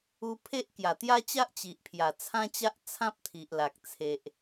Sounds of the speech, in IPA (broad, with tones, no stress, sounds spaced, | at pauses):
u˧ pʰ e˦ ʔ k j a˨˩ t̪ j a˦ t͡ɕ a˦ ʔ t͡ɕ i˨ ʔ pʰ j a˨˩ t͡sʰ ã˦ t͡ɕ a˦ ʔ t͡sʰ ã˦ p̚ t̪ʰ i˨ ʔ l a˨ k̚ t͡sʰ e˨ ʔ